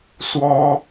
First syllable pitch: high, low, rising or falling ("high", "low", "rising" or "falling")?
high